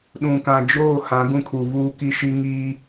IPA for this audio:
ɗ ũ˨ k ã˨ d͡ʒ oː˦˨ h ã˨˦ ɡ ũ˦˨ kʰ u˨ v uː˦ k i˦ ʃ i˦ ŋ i˦

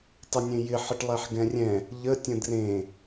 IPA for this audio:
tˤ ɪ nʲ ẽ j ɪ ħ ə ʈ lˠ ɛ ħ ɡ ɛ̃ rʲ ɛ̃ | ʎ ə tʲ ə̃ d r ẽ

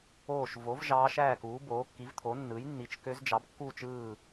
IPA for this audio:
oː˥˨ ʃ v o˩˥ v ʒ ɑː˧˥ ʃ æː˥˨ k uː˩˥ b oː˩˥ kː i˩˥ v t̪ʰ o˩˥ nː ɯː˩˥ j nː i˩˥ t͡ʃ k ø˧˥ z d͡ʒ ɑ˩˥ b kː uː˥˨ t͡ʃ ɯː˥˨

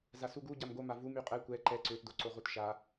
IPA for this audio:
z a s u ɡ u ɟ a m ɡ o m a v u m y qʼ ɛ kʷ ɛ ǃ ɛ ǀ ø t d o ǀ o ʁ u t ʃ a

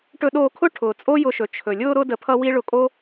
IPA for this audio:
ʈ ɵ˧ ɗ oː˧ kʰ ʊ˦ ʈʰ ʊː˨ t͡sʼ o˦ j ʊ˧ ʃ ɵ˨ t͡ʃʰ ɵ˨ lʲ ʊː˧ ɾ ʊ˧ d ə˧ pʰ ʌ˦ w i˦ ɭ ʊ˧ kʼ o˦

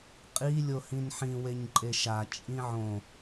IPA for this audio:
qʼ i lʲ o h ĩ n ħ ĩ w e ɲ ǃʼ e ʃ a t͡ʃʼ ĩ ʕ õ

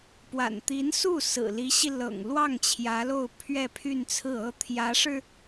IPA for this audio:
p w a̰˨˩ n t̪ i˧˥ n s u˥˩ s ɹ̩˨˩ l i˧˥ ɕ i˧ l ɤ̰˨˩ ŋ l w ɑ˥˩ ŋ t͡ɕʰ j ä˧˥ l o˥˧ ʊ̯ pʰ ɥ ɛ˥˧ pʰ y˥˧ n t͡sʰ ɹ̩˥˩ ɤ˥ t̪ʰ j ä˧˥ ʂ ɻ̩˧

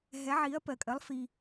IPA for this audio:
ɦ ɛ˩˥ ʕ i˩˥ ɐ̯ p ɜ˩ kʼ ɜ˩˥ lˠ f i˩

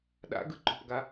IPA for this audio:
ɗ a̰ ɡ ɯ ǃ o̤ p ɡ a

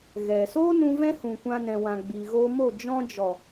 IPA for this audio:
ɣ ɛ˨ s oː˦ n ũ˧ v ɛ̃˦ h ũ˨ kʷ ã˧ n ɛ̃˨ w ã˨ ɡ͡b iː˨ ɣ oː˧ m o˦˨ d͡ʒ ɔ̃˧ d͡ʒ ɔ˨

